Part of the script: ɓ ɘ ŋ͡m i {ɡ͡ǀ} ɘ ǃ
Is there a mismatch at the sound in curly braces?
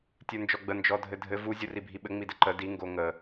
yes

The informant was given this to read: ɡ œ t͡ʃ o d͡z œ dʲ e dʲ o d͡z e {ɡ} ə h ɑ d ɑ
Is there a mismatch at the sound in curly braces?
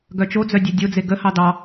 no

